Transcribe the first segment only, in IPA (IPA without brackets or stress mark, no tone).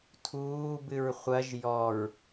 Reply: tʰ